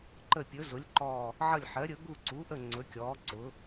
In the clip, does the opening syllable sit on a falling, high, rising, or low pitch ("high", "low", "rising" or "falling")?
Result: falling